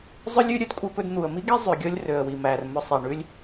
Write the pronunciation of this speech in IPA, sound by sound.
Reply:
zˤø˥lʲʉ˥ ɾʲœ˧dkʷʼe˧pɵ˧d n̪u˩ə̯mi˥ɡe˥ zˤʉ˩ɡʲɔ˥lʲ rø˩ə̯wi˩mæ˩r mɵ˧sˤe˩ ɳʉ˧lʲ

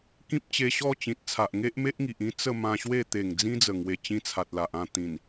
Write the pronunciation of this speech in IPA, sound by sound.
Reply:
kĩ˦p̚t͡ɕe˧ɕɔ˥˧ t͡ɕĩ˨t̚ t͡sʰa˨ʔŋe˦ʔme˦ʔŋi˨ʔ ĩ˦ t͡sə˥˧mã˧ɕwe˥˧ t̪e˨˩ŋ d͡zĩ˦d͡zə˨˩ŋwe˨˩ t͡ɕĩ˦t͡sʰa˨t̚la˨ʔ ã˥˧ t̪ĩ˨˩n

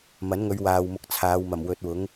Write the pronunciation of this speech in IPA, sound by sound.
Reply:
mɐ˨˥nŋɵ˨˧ɥwaː˨w mʊ˧k̚t͡sʰaː˨˧w mɐ˨˩mwɵ˨˥t̚wʊ˨˥ŋ

